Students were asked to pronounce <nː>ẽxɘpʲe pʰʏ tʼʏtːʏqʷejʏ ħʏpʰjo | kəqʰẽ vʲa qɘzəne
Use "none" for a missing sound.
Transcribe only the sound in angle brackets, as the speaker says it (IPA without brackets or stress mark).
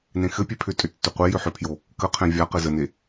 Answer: n